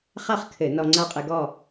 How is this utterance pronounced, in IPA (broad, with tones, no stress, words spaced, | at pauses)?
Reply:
χa˥˨χkʰɘ˧˩˧ nɔ˧ŋ͡ǀa˥˨qʼɨ˧ɡɔ˥˨